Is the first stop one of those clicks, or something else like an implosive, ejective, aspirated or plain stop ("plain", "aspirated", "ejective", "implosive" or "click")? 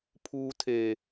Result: aspirated